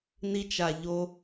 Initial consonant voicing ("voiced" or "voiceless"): voiced